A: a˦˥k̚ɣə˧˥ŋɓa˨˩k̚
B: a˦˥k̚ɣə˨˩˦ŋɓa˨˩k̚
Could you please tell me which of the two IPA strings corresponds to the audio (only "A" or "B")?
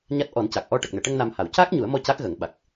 B